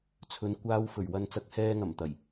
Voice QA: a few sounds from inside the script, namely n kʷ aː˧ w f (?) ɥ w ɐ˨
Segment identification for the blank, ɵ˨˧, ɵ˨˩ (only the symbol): ɵ˨˩